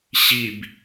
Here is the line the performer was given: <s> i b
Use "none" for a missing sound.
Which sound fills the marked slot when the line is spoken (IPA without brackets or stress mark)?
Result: ɕ